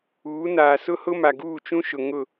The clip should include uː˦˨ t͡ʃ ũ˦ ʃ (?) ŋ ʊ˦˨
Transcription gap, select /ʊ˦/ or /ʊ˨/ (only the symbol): ʊ˨